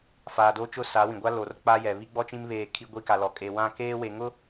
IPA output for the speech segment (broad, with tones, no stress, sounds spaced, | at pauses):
f aː˨ d o˦ t͡ʃ ʊ˦˨ s a˨˦ w ĩ˨ ɡʷ a˦ l o˨ r k͡p a˦ j ɛ˨ β i˦ ɡ͡b ɔ˦ t͡ʃ ĩ˦ m β eː˦˨ kʰ i˦ ɡʷ i˦ k a˨ l ɔ˨ kʼ e˨ w ã˦˨ k eː˦ w e˨ ŋ ʊ˦